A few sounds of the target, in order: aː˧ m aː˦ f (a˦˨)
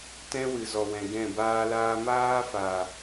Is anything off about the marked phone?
yes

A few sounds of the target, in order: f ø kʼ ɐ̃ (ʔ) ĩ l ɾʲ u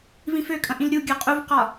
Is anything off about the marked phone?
no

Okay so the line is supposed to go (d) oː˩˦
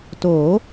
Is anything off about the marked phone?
yes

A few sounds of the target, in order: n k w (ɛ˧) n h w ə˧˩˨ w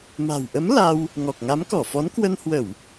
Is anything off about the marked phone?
yes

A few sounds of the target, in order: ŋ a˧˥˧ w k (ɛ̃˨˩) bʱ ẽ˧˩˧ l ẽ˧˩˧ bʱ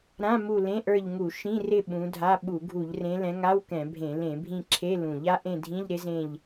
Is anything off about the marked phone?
yes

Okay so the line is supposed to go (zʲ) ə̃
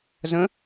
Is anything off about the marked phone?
yes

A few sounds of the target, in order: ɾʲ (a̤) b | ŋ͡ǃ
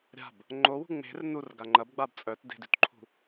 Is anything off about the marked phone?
no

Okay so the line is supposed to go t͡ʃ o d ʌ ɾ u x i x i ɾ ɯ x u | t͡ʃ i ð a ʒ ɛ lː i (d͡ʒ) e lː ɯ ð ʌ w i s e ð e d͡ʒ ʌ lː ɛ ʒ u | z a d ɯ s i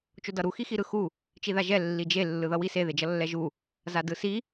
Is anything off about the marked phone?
no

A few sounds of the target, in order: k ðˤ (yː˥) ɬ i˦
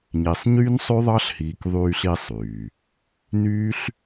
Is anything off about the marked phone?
yes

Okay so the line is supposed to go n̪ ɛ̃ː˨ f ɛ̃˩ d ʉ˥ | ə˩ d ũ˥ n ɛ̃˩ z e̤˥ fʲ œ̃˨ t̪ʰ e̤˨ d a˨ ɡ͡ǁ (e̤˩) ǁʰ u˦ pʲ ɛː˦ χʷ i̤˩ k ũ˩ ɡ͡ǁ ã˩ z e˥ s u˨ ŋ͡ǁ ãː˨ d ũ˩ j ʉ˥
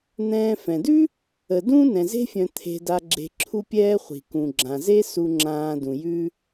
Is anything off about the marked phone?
yes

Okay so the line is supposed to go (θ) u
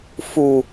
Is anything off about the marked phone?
yes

